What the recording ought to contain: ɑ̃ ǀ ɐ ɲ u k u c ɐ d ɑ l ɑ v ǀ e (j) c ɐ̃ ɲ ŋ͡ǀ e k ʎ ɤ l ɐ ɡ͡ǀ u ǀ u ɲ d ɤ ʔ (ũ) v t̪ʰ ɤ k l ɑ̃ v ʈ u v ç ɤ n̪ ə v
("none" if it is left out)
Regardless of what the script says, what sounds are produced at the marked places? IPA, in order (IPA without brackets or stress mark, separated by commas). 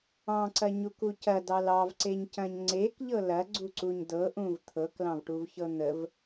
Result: ɲ, ũ